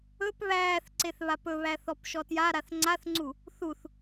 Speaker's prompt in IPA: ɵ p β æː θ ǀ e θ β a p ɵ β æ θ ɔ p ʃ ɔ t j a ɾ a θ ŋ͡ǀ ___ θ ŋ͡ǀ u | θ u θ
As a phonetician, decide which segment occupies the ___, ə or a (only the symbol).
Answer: a